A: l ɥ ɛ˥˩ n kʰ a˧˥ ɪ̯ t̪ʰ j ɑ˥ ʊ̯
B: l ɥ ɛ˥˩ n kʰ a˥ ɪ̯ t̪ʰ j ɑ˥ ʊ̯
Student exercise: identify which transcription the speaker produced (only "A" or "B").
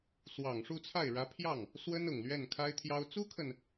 B